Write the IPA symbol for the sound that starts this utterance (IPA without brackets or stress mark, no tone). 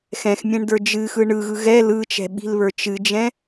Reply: x